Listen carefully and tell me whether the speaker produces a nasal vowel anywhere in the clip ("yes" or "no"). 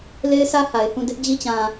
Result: yes